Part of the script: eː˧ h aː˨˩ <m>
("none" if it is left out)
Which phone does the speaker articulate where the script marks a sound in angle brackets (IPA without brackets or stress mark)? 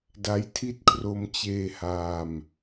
m